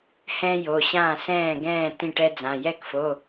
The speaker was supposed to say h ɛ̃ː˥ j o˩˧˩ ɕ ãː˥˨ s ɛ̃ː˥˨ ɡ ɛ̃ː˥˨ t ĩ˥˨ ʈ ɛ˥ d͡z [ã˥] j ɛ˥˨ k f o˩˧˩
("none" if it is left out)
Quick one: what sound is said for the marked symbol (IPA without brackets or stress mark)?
ã˩˧˩